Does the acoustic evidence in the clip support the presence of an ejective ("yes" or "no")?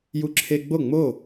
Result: no